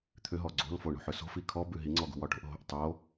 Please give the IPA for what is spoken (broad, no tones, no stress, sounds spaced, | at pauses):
t̪ʰ ʏ ɦ ɔ ɡ͡ǀ o̤ l f o ɳ o̤ ħ ʏ s o̤ f i kʰ ɔ b ʉ ɦ i ŋ͡ǀ ɔ ɡ ṳ w ɒ ʈ o̤ ʔ ɦ o̤ ʔ tˤ o